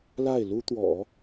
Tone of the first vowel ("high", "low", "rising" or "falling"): falling